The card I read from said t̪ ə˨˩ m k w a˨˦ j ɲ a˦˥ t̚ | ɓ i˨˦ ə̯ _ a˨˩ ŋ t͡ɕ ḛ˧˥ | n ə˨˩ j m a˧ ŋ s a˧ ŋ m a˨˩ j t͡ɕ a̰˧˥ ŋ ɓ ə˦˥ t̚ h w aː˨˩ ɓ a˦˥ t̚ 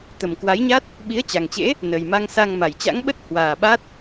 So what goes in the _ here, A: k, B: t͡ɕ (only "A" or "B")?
B